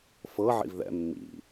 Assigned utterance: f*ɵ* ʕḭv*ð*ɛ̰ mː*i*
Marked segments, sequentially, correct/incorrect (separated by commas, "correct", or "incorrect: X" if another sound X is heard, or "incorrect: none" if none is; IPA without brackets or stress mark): incorrect: ɤ, correct, incorrect: ḭ